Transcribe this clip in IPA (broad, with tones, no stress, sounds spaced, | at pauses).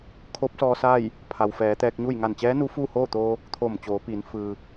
kʰ o˧˥ p̚ s ɔː˧ s aː˥˨ j | pʰ a˩ w f ɛː˩˧ t̪ ɛː˧ k̚ ɲ u˥˨ j ŋ a˧˩ n t͡ɕ ɛː˧˥ n u˧˥ f uː˥˨ h oː˥˨ t̪ oː˧ | t̪ʰ oː˧˩ m t͡ɕ oː˩˧ p iː˩˧ n f ɯː˩